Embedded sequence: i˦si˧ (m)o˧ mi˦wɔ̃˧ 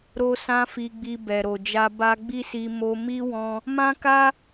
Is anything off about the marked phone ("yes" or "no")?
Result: no